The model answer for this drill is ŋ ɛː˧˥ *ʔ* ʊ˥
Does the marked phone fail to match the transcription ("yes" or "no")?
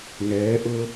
no